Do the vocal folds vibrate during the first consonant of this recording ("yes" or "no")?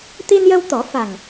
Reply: no